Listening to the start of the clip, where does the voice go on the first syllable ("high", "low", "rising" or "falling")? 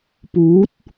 rising